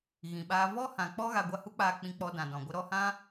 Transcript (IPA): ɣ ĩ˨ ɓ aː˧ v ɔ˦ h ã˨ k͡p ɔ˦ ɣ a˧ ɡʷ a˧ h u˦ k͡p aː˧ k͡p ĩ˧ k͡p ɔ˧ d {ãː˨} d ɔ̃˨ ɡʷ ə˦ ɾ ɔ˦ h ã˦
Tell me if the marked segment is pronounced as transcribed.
no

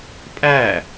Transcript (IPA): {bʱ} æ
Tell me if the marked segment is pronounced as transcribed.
no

